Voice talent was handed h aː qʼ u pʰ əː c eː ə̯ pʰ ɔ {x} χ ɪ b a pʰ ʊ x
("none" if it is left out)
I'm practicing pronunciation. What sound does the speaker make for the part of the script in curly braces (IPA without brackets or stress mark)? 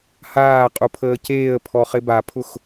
none